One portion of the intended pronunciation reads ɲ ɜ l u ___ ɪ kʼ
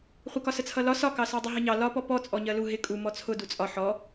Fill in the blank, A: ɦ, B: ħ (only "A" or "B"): A